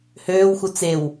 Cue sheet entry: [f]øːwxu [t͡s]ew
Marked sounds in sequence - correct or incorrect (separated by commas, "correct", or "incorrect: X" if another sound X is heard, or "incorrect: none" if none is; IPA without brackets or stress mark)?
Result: incorrect: h, correct